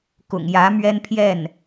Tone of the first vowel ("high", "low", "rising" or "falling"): low